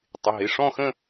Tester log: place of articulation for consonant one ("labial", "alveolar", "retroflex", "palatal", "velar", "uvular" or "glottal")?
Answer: alveolar